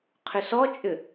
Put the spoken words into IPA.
qʰʏsɔt͡ʃʼʏ

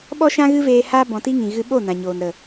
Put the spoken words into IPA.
ɓɔ˦ʃã˦ɣɨ˦veː˧ haː˧bɔ̃˨ti˧ŋĩ˨ ɣɨ˧ɓo˦˨ nã˨ɲoː˨n ɾə˨

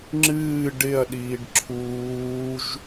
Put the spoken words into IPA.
ŋ͡ǁɨː ɖɪɐ̯ɗiːɖ ǁʰuːʒ

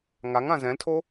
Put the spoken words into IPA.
ŋaŋã zɛ̃ltʰo

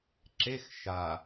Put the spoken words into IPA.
ǁex ʃa

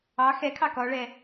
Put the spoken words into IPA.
ɑ xɛkʰɑ kɔɭɛ

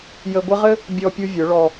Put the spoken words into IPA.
jə˧ɡʷɘ˦ʁɘ˦ | bʲɔ˧pʲu˧ vʲʊ˨˦ɭɔ˧

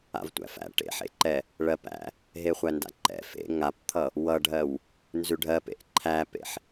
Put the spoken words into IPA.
a̰vtʷæ̰fæ̰ ʈḛħḛǃɛ | ɭɜpæ̰ | ɦeχʷænda̰ǃɛ̰ fḛ ŋapt̪ʰʌ | wʌɖʱɜw | nzʉɖʱɜpḛʔ ǃʰæpḛħ

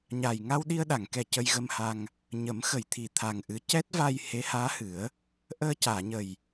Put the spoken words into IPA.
ɲa˨˩j ŋa˧wɗi˧ə̯ɗa˨˩˨ŋkɛ˨˩ cə˧jɣə˧mha˧ŋ | ɲə˨˩˦mxə˨˩˨jt̪ʰi˨˩ t̪ʰa˨˩ŋʔɨ˧˥ cɛ˦˥t̚va˧j he˧˥haː˧˥hɨ˨˩˦ə̯ | ʔəː˧caː˨˩˨ɲə˨˩j

